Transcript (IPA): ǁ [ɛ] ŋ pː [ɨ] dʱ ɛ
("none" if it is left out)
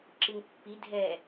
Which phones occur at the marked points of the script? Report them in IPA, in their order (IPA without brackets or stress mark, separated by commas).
ɨ, i